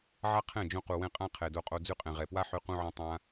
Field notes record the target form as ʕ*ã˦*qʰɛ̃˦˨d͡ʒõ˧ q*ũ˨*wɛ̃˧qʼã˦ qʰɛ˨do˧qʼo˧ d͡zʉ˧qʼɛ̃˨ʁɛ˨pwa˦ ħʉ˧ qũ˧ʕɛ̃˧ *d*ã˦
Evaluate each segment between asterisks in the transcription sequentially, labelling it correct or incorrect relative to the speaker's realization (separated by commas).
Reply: incorrect, incorrect, incorrect